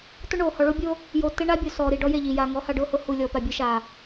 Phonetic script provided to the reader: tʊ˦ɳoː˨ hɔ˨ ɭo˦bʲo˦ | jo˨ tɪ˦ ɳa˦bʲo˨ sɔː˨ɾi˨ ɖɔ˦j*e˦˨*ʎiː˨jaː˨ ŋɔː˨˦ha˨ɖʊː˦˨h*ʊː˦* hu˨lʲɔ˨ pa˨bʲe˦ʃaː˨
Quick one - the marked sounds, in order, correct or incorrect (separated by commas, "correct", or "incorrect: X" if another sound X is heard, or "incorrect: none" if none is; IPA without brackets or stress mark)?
correct, correct